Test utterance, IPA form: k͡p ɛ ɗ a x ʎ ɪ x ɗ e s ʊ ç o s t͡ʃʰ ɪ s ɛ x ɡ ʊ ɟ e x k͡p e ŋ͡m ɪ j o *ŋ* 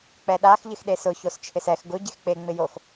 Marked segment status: incorrect: x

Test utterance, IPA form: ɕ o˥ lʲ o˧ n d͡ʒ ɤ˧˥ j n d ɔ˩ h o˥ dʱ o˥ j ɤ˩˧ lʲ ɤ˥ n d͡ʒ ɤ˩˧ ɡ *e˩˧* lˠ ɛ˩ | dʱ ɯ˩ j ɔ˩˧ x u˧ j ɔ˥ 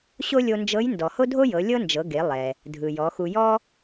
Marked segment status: correct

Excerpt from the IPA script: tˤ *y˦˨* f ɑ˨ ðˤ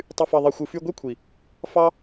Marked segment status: incorrect: y˨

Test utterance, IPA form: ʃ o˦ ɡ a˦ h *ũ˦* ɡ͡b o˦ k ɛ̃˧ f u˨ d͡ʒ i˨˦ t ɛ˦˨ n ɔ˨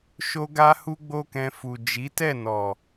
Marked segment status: incorrect: u˦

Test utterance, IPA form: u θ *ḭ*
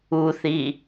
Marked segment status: incorrect: i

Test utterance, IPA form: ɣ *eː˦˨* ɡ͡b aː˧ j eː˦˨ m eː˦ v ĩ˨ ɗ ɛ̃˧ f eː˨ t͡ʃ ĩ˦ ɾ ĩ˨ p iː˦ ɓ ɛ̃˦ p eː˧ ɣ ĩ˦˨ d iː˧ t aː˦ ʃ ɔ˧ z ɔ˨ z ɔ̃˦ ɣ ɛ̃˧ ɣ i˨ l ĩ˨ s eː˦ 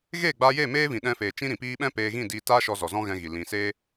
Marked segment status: correct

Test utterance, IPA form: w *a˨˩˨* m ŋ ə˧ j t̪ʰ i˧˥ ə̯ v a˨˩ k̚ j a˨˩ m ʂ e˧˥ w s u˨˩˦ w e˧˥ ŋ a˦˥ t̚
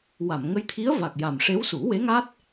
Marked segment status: correct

